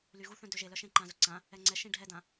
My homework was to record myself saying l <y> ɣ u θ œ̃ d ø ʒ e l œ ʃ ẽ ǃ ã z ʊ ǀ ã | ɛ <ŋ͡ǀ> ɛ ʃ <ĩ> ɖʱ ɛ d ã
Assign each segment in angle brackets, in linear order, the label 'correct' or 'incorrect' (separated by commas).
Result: correct, correct, correct